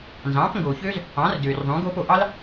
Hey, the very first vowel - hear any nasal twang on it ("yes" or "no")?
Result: yes